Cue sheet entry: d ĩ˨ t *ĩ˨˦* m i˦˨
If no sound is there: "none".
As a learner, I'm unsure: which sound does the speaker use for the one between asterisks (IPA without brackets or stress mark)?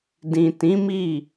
ĩ˨˦